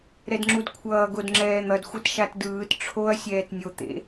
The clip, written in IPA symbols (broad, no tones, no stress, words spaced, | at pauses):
ɾɛdŋ͡ǁudkʷʰʌː ɡodŋ͡ǁɛːn̪ʌd xʷɛtʃatdɯːt ʈ͡ʂʰoɐ̯ sʲɛːtnʲo t̪ḛ